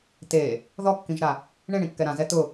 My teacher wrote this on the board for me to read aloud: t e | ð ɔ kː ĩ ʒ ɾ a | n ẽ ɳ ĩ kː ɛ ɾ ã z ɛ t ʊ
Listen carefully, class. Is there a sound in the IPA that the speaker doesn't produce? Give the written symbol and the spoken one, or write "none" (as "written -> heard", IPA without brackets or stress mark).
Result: n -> ɳ